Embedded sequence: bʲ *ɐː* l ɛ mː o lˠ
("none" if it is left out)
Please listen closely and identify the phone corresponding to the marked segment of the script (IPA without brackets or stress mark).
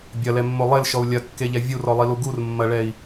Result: ɐ